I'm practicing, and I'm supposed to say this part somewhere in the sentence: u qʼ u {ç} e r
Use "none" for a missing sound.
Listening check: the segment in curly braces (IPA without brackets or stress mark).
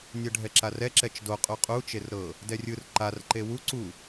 t͡ʃ